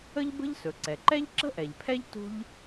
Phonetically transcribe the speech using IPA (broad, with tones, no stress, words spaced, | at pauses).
ə˥ʎbə̤˥ʎsɵ˩ ǀɛ˩ǃɛ˥ʎ ǁə̤˥ʔɛ˩ʎpʰɛ˥ʎ tṳ˥ʎ